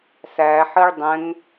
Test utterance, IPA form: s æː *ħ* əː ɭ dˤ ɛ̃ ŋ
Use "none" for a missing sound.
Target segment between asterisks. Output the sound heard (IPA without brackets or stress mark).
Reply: ħ